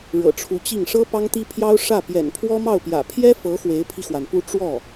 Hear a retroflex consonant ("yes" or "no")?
yes